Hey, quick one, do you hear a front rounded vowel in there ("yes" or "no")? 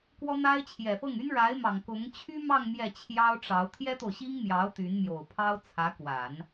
yes